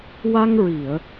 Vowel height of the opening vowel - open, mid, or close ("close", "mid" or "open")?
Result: open